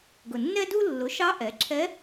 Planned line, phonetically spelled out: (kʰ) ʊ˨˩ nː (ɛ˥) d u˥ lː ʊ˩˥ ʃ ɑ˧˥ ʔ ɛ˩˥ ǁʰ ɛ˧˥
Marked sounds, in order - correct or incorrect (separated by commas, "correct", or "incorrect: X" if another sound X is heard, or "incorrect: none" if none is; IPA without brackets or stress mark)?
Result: incorrect: ɡ, correct